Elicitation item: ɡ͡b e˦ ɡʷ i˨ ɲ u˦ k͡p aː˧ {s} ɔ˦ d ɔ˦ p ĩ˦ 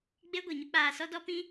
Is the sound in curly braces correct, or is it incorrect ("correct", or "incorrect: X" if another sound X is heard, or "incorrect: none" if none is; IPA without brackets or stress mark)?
correct